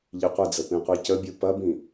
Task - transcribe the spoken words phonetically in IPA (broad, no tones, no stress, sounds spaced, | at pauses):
ʎ i qʷ ə d͡z ə p ĩ qʷ i c ə bʲ u p ɐ b ĩ